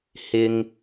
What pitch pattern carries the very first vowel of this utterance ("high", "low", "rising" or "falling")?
high